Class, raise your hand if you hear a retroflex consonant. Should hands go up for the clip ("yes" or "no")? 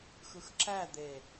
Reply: no